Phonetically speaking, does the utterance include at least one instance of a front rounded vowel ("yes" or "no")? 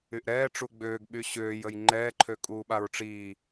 yes